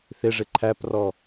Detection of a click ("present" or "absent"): present